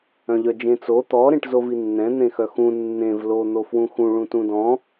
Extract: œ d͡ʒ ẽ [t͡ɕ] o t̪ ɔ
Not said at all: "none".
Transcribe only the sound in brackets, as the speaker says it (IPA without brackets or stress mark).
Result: t͡s